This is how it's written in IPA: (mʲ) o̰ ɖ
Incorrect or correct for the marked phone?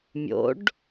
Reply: correct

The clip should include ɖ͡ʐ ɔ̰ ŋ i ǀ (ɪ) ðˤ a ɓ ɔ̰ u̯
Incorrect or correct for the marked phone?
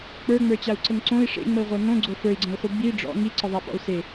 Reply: incorrect: ə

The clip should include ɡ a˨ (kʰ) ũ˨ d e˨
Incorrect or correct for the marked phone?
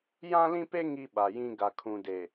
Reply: correct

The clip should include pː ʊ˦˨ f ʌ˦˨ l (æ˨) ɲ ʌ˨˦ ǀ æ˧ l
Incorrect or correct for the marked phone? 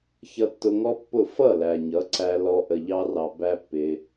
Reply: correct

